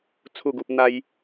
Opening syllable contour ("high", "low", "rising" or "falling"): falling